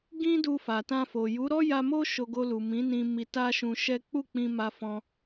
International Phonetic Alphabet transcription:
ɡ ĩ˦ d u˧ f a˨ t ã˧ f o˨ j u˨˦ ɾ ɔ˦ j a˧ m o˦ ʃ o˧ ɡ o˧ l u˨ m ĩ˨˦ n ĩ˧ m i˧ t a˦ ʃ ũ˧ ʃ ɛ˦ k͡p u˦˨ k͡p ĩ˧ m a˧ f ɔ̃˧

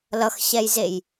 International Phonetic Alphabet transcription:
l ʌ x ɕ ɛ j z e j

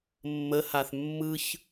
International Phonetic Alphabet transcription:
mː ə h a θ mː ɯ ç

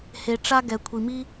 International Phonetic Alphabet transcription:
h e˨ ʈ͡ʂ a˦ ɡ ɛ˩ kʷʰ i˩ m i˥

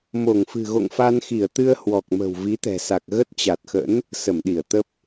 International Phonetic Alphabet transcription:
m o˧˩ ŋ f ɨ̤˨˩ ɣ o̰˧˨ ŋ f a˧ n x i˧˩ ə̯ t̪ ɨ˧ ə̯ h w ɔ˨˩ k̚ m ə̤˨˩ w v i˨˦ t̪ ɛ̤˨˩ s a˨˩ k̚ ɣ ə˦˥ t̚ t͡ɕ a˨˩ t̚ x ə̰˧˥ n | s ə˧˩ m ɗ i˧˩ ə̯ t̪ ə˦˥ p̚

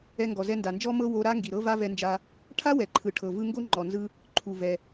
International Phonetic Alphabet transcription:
ɛ˧ ŋ ɡ ɔ˩ z ɛ˧ n d a˩ n d͡ʒ ɔ˥ m ɤ˥ w o˧ ɾ a˥ ŋ ɡ i˩ ɾ ɤ˥ v a˥ v ɛ˧ n d͡ʒ a˧ | ʈʰ a˥ w ɛ˩ ǃʰ ɯ˩ ʈʰ ɤ˩ v ɯ˧ ŋ ɡ o˥ ŋ͡ǃ ɔ˩ n z ɯ˧ | ǃʰ u˩ v ɛ˩

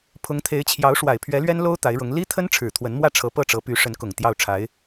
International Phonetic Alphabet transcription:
pʰ ʊ˧˥ ŋ t̪ʰ e˧˥ ɪ̯ t͡ɕʰ j ɑ˧˥ ʊ̯ ʂ w a˨˩ ɪ̯ pʰ ɥ ɛ˧˥ l ɥ ɛ˥ n l o˥ ʊ̯ t̪ a˧˥ ɪ̯ ɻ ʊ˧˥ ŋ l i˥ t̪ʰ ə˥ n ʈ͡ʂʰ ɻ̩˨˩ t̪ʰ w ə˧˥ n m w ä˥˩ ʈ͡ʂʰ ɤ˧˥ p ɤ˥˩ ʈ͡ʂ ɤ˧˥ p y˧˥ ʂ ə˧˥ n k ʊ˨˩ ŋ t̪ j ɑ˥˩ ʊ̯ ʈ͡ʂʰ a˧˥ ɪ̯

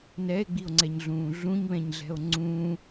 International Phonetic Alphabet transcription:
n ɛ e̯ ɡ͡b i o̯ ŋ͡ǀ ɛ ɲ ɮ ũː ɮ ũ ɲ β ɛ̃ ɲ ɮ ɛ̤ o̯ ŋ͡ǀ ũː

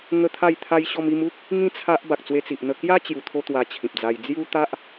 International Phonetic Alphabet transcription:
ŋ ə˦ t̪ʰ a˥˧ j t̪ʰ a˦ j ɕ ɔ˧ m i˧ m u˦ k̚ | ŋ ĩ˦ t͡sʰ a˦ ʔ b a˨ k̚ t͡s w e˧ t͡s i˨ ʔ n̪ ə˧ k j a˦ t͡ɕ j u˨˩ t̪ʰ o˧ t̪ w a˧ t͡ɕʰ ĩ˨ p̚ d͡z a˧ j d͡z j u˦ t̪ a˦ ʔ

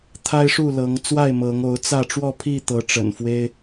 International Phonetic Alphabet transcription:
t̪ʰ a˦ ɪ̯ ʂ u˥˨ l ɤ˨˦ ŋ t͡s w a˥˨ ɪ̯ m ɤ˨˦ ŋ o˨˦ ʊ̯ t͡s ä˥˨ ʈ͡ʂ w ɔ˥˨ pʰ i˥˨ t̪ ɤ˨˦ ʈ͡ʂ ə̰˨˩ n f w e˦ ɪ̯

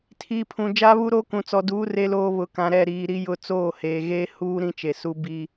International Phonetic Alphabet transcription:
tʰ iː˨ pʰ ũ˨ d͡ʒ aː˦ β u˦ ɾ oː˦ k ũ˨ t͡s ɔ˨ d uː˨˦ r e˦ l oː˦ β ʊ˨ k ã˨ ɾ ɛ˦˨ ɾ iː˨ ɾ i˦ j ʊ˦ t͡s oː˦˨ h eː˨ ɣ eː˦ h uː˦ ɾ ĩ˦ t͡ʃ e˨ s u˦ b i˦

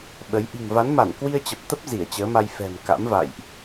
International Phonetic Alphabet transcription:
ɓ ə˨˦ j ʔ i̤˨˩ ŋ v a˨˦ n m a˧˩ n k w i˧ ə̯ t͡ɕ ə˨˩ p̚ t̪ ə˦˥ p̚ z i˧˩ ə̯ t͡ɕ əː˨˦ m a˧ j f ɛ̤˨˩ m k a̰˧˥ m v a̰˧˨ j ʔ

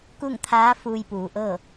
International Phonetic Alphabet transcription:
k u˥˨ ŋ t̪ʰ aː˧˥ f uː˧ j p uː˩˧ ʔ ɤː˥˨

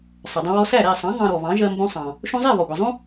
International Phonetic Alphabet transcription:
sˤ ə˩ dˤ ə̃˧ w ɔ˧ s æ˥˩ ɾ æ˥˩ sˤ ɑ̃˩˥ ŋ ɑ̃˧ ɾ ɔ˩ β ɑ̃˩˥ ʒ ɜ˧ m b ũ˧ sˤ ɑ̃˩ | ʃ ũ˧ zˤ ɛ˥˩ β ɔ˩ ɡʷ i˩ zˤ ũ˥

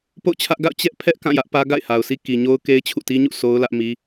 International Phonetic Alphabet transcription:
p o̰˦˨ ʊ̯ t͡ɕʰ ä˦ ʔ ɡ a̰˦˨ ʊ̯ t͡ɕ ɛ˦ ʔ pʰ ɛ˦ ʔ k ã˦˨ j ä˦ ʔ p ä˦ ɡ a̰˦˨ ɪ̯ h a˨ ʊ̯ sʰ i˦ k i˨ ɲ o˦ ʊ̯ k e˦ ɪ̯ t͡ɕʰ ṵ˦˨ t i˦ ɲ ṵ˦˨ sʰ o˦ ʊ̯ l ä˦ ʔ m i˦

